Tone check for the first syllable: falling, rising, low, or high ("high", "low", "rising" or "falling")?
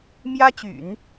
high